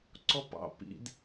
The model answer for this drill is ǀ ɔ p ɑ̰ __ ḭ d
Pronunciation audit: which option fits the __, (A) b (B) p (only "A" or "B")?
B